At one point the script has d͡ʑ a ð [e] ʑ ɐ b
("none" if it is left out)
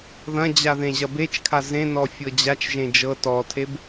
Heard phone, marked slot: ẽ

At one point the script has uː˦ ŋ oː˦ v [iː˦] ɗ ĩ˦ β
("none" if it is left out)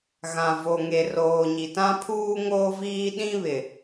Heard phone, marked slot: iː˦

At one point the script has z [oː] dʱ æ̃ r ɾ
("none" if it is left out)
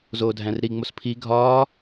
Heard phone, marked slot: oː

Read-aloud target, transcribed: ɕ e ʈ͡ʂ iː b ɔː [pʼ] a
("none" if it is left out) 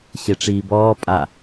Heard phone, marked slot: pʼ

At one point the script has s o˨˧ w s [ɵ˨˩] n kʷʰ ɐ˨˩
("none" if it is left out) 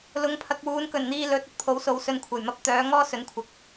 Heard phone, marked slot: ɵ˧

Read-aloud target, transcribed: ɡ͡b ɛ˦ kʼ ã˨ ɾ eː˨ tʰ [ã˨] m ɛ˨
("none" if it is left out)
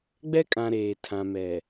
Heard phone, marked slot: ã˨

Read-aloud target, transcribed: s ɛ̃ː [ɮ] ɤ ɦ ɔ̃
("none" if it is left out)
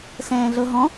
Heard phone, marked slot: ɮ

